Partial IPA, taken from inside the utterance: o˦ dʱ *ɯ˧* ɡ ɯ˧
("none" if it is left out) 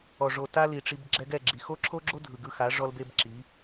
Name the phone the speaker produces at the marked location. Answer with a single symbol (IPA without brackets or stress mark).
ɯ˨